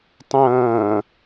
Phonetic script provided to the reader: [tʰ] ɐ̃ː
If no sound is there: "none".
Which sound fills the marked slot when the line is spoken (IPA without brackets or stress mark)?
tˤ